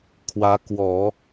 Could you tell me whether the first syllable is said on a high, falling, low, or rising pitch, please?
rising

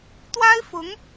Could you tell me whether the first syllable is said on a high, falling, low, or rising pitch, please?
high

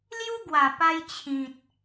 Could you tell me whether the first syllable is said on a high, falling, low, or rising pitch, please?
high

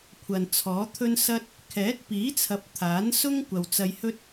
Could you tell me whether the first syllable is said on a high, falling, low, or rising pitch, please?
low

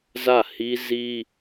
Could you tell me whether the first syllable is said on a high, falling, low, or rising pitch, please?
falling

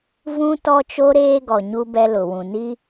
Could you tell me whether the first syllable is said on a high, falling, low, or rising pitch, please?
high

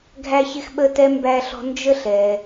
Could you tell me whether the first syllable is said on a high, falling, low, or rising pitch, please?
high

